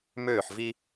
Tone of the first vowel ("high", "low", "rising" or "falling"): falling